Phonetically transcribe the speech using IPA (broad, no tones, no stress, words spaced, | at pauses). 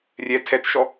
rʲɛ tʰɛtʃɔ